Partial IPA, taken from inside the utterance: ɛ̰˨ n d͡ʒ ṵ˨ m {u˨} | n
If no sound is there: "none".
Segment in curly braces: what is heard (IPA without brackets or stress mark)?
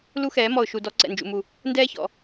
u˨